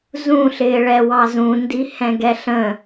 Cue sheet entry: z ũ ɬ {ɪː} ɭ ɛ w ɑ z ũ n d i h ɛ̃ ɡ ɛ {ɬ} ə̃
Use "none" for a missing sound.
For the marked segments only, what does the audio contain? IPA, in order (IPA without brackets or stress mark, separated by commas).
ɪː, ɬ